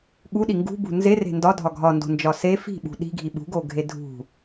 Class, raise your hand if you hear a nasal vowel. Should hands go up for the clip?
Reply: no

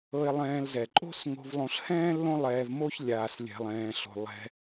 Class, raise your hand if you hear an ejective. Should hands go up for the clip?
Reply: yes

